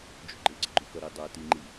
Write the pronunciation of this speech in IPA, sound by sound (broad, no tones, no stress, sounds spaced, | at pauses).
d͡ʒ ṳ ɡ͡ǃ ɪ ɡ͡ǀ ə̤ ɡ͡ǃ u k ʌ ɾ i dˤ ə˞ t i ŋ͡ǃ i